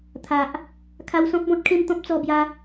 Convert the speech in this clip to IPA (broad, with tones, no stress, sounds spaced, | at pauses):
t̪ʰ a˨ ʔ | kʰ a˧ w s ɔ̃˦ p̚ b ɔ̃˦ t̚ kʰ ẽ˥˧ m t̪ ɔ̃˦ p̚ t͡s ɔ˧ b j a˧